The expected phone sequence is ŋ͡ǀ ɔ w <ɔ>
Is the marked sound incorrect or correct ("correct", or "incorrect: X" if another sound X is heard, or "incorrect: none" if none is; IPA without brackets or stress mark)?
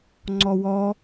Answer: correct